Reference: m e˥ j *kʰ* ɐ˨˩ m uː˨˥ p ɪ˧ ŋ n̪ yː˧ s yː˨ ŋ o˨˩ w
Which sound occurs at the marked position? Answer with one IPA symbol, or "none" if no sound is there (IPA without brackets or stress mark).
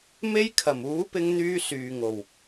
kʰ